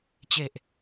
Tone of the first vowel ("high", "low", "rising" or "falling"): low